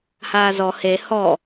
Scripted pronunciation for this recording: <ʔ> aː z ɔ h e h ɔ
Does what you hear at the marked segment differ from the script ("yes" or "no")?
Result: yes